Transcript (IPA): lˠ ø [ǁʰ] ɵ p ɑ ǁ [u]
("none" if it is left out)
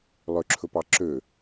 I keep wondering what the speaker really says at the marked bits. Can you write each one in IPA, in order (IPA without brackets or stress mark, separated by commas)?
ǁʰ, ø